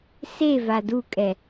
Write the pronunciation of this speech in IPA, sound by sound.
se vadukʼɛ

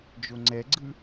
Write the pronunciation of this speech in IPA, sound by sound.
d͡ʒoŋ͡ǀɛɡ͡ǀɯ

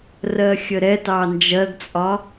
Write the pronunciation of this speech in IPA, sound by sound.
rɜxʲəɾɛ tɑnd͡ʒɜɡt͡sʼɒ

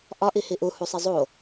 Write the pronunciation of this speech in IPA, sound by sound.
ʔɒʔi hiʔu husˤizˤo

